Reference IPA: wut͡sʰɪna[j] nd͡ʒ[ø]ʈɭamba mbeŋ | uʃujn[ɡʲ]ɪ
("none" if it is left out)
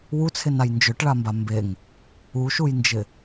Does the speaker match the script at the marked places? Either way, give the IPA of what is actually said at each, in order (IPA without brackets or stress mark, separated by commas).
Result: j, ø, d͡ʒ